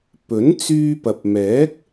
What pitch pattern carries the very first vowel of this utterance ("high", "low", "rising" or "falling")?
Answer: rising